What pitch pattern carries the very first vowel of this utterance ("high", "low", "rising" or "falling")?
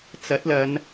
rising